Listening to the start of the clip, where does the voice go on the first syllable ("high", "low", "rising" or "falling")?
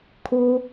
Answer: high